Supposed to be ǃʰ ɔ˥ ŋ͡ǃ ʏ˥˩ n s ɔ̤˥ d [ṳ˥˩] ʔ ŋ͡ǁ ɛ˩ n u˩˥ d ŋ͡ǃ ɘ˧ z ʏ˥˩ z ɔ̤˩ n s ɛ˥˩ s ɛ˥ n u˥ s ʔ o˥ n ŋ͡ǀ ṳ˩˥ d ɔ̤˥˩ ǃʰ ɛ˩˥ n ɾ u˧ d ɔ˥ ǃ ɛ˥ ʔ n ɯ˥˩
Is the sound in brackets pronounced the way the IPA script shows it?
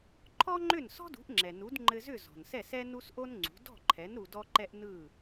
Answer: no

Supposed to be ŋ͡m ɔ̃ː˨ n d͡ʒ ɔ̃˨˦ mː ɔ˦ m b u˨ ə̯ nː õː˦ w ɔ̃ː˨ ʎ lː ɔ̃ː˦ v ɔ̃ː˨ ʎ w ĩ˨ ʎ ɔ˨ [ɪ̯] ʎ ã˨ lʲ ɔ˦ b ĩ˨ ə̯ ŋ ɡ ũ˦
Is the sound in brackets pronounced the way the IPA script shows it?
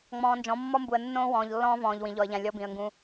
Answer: no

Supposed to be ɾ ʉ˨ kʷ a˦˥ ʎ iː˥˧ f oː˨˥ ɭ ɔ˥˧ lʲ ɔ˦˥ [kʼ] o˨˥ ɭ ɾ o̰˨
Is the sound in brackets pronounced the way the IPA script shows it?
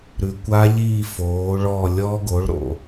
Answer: no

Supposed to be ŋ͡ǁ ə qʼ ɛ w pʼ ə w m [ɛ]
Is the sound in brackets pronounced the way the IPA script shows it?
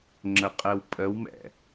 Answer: no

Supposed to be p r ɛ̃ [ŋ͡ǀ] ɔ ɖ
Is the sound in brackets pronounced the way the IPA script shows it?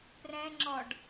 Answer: no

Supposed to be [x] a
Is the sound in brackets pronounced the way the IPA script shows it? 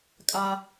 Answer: no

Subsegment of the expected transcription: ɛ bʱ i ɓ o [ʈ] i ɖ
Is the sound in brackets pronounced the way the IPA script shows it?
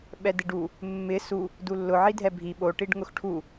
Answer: yes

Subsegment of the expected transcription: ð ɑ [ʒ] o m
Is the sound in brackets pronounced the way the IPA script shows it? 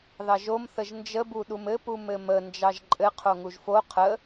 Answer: yes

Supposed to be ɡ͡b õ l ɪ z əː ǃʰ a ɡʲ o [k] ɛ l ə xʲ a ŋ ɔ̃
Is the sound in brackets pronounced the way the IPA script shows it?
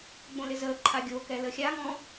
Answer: yes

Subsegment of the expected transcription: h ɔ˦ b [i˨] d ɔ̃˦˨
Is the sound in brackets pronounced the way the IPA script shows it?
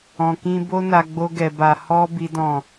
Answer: no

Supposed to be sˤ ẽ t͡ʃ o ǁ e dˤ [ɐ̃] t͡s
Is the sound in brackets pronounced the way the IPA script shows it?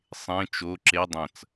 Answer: yes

